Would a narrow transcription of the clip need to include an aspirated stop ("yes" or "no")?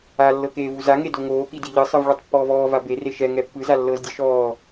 no